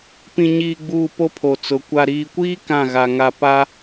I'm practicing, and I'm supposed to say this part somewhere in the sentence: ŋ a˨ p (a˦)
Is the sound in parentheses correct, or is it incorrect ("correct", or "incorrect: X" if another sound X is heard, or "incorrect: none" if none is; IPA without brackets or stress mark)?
correct